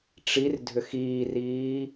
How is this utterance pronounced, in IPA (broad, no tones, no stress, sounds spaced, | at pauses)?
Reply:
ʈ͡ʂ i r dʱ ʏ x iː r iː